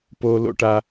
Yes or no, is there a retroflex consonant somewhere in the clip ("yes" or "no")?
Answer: yes